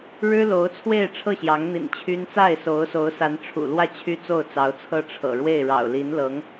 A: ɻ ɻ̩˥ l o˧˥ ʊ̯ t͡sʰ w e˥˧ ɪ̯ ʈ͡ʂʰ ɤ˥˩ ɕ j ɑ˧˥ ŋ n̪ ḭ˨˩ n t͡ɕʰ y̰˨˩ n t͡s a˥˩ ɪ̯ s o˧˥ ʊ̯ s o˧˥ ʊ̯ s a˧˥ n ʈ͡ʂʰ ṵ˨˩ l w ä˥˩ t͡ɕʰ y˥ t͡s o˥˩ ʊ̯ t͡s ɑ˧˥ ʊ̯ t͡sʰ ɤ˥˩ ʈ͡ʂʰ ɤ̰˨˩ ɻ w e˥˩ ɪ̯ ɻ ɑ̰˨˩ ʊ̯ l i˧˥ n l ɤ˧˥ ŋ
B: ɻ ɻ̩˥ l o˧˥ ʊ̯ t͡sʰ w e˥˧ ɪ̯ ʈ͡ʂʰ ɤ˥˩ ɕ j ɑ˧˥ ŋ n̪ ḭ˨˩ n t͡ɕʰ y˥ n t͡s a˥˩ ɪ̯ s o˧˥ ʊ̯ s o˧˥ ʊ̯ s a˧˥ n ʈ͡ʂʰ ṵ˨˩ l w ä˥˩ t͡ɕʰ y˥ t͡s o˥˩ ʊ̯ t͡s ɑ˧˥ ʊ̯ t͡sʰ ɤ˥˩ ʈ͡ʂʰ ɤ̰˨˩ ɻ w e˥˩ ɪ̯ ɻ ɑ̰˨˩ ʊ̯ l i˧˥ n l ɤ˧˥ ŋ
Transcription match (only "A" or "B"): B